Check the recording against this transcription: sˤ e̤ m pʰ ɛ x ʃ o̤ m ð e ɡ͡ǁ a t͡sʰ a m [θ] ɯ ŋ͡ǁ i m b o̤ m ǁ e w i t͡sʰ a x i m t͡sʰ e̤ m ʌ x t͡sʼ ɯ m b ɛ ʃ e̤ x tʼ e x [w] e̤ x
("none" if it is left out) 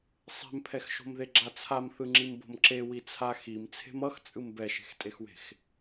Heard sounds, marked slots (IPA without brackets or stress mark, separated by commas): θ, w